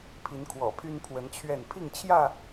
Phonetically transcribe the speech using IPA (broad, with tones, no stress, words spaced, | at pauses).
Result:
pʰi˨˦nkʰwɔ̰˨˩pʰy˦n pʰwə˨˦nt͡ɕʰɥɛ˥˨n pʰi˥˨ŋt͡ɕʰjä˥˨